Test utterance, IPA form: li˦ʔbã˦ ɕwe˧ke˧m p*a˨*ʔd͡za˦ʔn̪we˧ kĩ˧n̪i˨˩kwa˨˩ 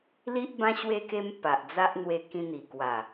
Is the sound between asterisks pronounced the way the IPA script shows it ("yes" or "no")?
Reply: yes